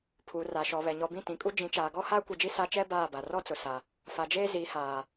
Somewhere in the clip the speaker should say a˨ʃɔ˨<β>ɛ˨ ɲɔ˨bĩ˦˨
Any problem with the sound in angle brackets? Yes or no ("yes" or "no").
no